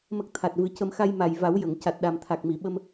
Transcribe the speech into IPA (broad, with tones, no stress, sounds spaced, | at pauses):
m ə˦˥ k̚ t̪ʰ a˨˩ t̚ v ɨ˨˩˦ c ə˧ m x a˧ j m a˨˩ j v a˨˩˦ w j ə˨˩˨ ŋ c a˨˩ t̚ ɗ a˨˩ m t̪ʰ a˨˩ k̚ m i˨˩˨ ɓ ə˧ m